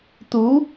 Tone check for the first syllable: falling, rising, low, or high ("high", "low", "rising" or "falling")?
rising